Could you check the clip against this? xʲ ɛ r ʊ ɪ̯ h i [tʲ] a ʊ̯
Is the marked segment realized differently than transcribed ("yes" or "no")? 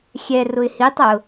yes